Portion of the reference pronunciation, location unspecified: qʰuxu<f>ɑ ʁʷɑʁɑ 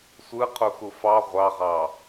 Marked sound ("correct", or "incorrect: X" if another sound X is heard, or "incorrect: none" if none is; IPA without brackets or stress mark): correct